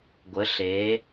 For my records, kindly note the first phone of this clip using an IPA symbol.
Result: ɡʷ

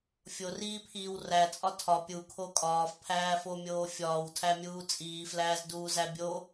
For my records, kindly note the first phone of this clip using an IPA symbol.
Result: fʲ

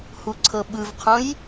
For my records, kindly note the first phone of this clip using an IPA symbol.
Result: h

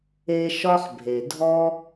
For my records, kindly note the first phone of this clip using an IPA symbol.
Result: e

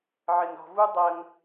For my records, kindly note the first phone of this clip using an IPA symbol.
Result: ʕ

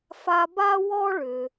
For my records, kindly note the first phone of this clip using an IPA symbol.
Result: f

